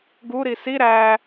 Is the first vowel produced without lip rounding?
no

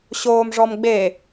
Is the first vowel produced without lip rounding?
no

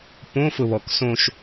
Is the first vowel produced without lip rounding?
no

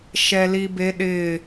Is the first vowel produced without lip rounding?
yes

